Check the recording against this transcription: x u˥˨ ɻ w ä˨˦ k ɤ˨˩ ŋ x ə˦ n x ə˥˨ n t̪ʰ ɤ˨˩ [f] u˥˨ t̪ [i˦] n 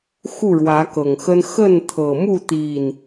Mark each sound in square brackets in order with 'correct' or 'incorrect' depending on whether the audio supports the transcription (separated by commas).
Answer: incorrect, incorrect